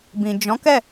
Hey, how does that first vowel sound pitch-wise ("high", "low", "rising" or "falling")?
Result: low